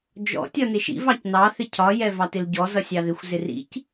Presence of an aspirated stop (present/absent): present